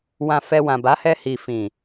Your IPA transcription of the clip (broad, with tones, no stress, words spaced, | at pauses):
wã˧fɛ˧ wã˨ba˨˦hɛ˧ hi˨fĩ˨